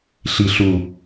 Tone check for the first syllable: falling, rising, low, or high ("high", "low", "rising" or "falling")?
low